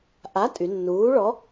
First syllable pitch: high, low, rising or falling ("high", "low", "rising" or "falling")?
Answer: rising